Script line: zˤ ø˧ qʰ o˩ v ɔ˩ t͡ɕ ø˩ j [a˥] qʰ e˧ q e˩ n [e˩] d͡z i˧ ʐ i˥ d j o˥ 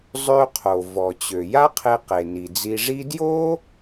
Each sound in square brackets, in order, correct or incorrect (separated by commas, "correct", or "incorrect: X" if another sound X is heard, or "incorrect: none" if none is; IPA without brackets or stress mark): correct, incorrect: i˩